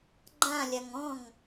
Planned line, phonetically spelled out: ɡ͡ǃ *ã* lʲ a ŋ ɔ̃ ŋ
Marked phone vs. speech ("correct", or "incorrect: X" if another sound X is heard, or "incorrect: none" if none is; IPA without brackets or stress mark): correct